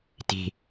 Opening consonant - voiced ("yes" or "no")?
no